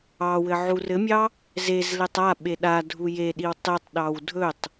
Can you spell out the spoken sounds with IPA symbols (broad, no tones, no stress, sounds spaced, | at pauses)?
ɑ w ɘ ʕ u r ɘ mʲ ɑ | z e z l e tˤ a ɓ e ɗ a dʱ u j e ɗ i w tˤ e tˤ ɗ ɑ w dʱ ɵ tˤ